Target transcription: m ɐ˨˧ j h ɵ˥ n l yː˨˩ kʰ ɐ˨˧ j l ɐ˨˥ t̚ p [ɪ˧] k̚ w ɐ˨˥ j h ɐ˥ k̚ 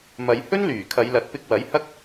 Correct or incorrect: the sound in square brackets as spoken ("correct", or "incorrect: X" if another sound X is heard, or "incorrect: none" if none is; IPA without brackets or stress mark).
correct